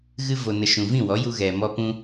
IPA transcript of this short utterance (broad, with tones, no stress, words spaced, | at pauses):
ɣɨ˦vo˧nə˧ʃũ˧ vĩ˦˨wɔ˨˦ju˧ ɣɛ˧mɔ˦pũ˦